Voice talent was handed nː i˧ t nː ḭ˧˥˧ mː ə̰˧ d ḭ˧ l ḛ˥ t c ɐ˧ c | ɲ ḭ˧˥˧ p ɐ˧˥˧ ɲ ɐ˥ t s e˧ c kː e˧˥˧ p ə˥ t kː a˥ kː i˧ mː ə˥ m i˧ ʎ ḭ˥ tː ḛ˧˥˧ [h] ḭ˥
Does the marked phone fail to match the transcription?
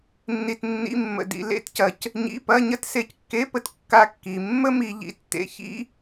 yes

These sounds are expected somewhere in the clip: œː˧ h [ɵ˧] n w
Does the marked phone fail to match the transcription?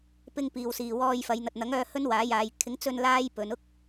yes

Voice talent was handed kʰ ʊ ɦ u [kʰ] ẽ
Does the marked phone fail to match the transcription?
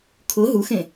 yes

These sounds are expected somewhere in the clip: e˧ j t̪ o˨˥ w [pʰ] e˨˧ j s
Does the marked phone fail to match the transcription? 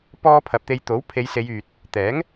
no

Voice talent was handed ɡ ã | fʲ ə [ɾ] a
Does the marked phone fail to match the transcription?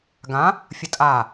yes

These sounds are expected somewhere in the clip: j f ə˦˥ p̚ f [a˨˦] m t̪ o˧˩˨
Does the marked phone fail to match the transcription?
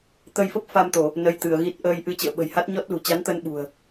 yes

